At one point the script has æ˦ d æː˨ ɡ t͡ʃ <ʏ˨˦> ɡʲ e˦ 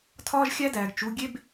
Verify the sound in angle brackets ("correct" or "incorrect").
incorrect